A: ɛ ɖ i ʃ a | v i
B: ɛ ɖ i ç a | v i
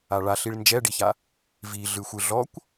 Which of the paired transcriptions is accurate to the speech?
B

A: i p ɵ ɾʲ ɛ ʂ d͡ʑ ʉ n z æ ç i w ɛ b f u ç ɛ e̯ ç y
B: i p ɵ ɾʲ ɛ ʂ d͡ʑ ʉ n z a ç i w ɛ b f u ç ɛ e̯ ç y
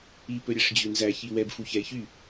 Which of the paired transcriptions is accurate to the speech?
A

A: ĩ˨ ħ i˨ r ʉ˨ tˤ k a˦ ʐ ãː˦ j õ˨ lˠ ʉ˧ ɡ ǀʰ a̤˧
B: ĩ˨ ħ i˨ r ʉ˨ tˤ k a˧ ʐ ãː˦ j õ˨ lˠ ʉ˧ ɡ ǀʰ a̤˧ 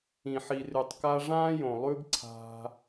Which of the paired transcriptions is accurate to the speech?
B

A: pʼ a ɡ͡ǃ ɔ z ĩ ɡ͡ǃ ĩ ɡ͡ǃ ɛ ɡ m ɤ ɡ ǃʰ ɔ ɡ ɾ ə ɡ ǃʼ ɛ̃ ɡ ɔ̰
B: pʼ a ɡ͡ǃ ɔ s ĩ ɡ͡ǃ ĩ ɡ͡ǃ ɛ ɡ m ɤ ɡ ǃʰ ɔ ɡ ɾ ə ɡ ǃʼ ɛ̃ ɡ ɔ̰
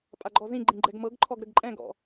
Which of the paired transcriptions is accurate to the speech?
A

